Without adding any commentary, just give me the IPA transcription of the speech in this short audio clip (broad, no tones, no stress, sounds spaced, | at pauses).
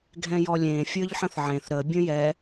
ɡʱ ɛ̃ j ɔ lʲ ẽ fʲ ə˞ ʎ ħ ə̃ θ ʕ ẽ θ ɾ ə bʲ ə̃ j ɛ